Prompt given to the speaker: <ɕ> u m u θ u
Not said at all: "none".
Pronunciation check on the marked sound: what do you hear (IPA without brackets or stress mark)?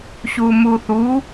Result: ɕ